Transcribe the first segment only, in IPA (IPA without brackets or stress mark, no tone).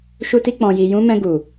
ʃ